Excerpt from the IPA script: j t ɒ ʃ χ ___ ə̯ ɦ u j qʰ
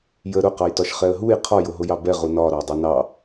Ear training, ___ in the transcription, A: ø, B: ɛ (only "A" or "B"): B